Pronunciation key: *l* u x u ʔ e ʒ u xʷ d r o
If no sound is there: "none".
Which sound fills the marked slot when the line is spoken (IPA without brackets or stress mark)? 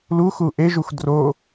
l